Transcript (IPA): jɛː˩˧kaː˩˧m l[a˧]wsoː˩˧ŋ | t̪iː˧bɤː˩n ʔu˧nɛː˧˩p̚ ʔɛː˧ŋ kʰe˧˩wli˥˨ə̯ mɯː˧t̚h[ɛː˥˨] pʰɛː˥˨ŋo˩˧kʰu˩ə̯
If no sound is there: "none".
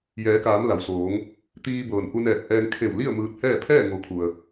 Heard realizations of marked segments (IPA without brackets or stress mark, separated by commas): a˩, ɛː˥˨